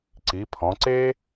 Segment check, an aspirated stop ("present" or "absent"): present